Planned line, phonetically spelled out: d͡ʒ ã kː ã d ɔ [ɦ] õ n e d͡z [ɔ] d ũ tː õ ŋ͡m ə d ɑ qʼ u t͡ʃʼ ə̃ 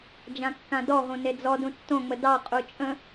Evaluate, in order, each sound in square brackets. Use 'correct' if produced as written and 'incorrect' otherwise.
correct, correct

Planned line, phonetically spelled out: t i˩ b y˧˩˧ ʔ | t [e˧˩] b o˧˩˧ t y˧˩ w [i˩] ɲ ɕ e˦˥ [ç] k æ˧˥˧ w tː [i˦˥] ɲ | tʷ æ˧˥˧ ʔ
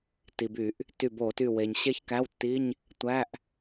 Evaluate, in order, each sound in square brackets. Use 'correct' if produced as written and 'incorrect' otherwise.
incorrect: y˧˩, incorrect: e˩, correct, incorrect: i˧˥˧

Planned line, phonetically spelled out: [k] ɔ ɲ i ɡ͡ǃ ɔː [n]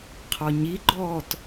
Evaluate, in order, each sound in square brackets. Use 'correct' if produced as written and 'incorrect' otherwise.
incorrect: qʰ, incorrect: t

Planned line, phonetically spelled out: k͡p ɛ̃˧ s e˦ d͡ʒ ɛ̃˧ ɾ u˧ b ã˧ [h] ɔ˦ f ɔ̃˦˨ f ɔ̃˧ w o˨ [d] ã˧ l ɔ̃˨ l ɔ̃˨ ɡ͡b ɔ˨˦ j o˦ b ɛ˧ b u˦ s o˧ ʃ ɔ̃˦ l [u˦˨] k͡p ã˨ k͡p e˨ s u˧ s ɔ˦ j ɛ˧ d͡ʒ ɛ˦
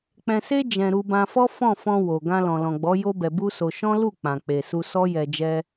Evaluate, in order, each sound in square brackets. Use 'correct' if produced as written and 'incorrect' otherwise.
incorrect: f, incorrect: ɡ, correct

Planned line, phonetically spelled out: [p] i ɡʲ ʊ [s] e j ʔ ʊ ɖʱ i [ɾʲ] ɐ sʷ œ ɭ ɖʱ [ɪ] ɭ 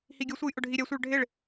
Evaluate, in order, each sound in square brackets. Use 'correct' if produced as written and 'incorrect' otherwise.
incorrect: h, incorrect: sʷ, correct, correct

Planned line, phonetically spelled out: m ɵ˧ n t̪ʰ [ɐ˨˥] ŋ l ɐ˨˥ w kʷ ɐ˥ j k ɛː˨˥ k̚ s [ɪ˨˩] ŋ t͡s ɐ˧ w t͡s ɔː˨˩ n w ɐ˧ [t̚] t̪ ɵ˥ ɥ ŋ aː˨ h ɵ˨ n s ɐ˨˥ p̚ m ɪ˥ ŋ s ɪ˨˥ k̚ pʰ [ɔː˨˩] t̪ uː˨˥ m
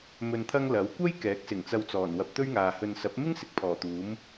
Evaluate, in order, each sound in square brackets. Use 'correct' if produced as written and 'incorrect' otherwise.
incorrect: ɐ˥, correct, incorrect: p̚, correct

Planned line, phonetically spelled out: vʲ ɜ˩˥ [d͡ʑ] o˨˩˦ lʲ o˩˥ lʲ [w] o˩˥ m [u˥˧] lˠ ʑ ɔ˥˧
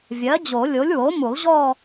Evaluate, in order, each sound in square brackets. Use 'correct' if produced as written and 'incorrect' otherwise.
correct, correct, incorrect: u˨˩˦

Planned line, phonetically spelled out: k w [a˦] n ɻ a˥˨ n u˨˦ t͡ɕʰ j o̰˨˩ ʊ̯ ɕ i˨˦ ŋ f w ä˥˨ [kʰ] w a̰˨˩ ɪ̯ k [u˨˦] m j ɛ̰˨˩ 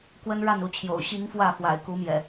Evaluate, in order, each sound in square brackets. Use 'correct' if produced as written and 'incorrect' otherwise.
incorrect: ə˦, incorrect: x, correct

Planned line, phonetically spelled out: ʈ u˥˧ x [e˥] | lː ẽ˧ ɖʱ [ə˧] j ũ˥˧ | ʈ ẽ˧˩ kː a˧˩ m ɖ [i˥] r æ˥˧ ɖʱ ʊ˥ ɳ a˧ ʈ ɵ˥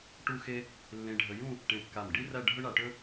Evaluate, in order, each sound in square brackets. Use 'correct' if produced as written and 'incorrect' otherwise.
correct, correct, correct

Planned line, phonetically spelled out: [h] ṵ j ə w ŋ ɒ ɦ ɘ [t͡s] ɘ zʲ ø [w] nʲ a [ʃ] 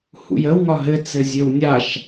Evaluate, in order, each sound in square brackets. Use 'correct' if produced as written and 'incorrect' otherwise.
correct, correct, correct, correct

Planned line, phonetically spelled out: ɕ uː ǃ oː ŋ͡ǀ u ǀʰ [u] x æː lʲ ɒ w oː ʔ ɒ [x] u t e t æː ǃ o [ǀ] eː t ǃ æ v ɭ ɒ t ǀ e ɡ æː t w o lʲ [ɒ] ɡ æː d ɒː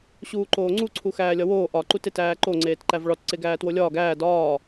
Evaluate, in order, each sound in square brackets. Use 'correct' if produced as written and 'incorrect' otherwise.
correct, incorrect: ǃ, incorrect: ŋ͡ǀ, incorrect: ɒː

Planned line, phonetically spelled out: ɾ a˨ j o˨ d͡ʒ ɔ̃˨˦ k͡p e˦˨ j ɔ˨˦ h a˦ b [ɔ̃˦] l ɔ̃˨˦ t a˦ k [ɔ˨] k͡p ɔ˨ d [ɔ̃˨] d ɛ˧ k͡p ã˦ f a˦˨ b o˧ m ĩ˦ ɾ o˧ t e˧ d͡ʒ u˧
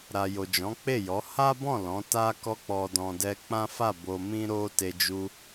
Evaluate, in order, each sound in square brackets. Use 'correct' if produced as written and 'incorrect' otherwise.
incorrect: ɔ̃˦˨, incorrect: ɔ˧, correct

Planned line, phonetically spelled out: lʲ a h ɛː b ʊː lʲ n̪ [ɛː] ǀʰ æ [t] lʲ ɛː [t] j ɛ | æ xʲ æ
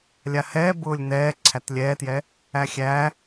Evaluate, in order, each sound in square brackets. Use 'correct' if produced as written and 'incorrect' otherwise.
correct, correct, correct

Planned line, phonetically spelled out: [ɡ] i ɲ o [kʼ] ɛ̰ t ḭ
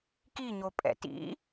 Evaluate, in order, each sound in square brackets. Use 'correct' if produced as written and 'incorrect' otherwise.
incorrect: k, incorrect: pʼ

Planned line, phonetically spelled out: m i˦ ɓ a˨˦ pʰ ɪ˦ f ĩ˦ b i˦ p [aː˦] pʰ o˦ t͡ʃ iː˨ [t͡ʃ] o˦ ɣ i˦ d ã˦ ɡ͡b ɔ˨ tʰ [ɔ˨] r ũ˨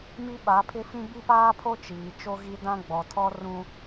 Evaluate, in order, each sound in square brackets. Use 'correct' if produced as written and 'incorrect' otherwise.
correct, correct, incorrect: ɔ˦

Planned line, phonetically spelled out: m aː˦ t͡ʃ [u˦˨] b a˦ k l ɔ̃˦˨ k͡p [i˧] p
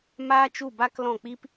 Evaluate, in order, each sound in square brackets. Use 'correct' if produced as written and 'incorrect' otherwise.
correct, incorrect: i˦

